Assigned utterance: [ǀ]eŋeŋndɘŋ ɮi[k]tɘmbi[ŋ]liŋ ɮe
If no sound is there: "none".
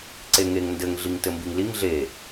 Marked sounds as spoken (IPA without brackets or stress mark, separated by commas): ǀ, ŋ, ŋ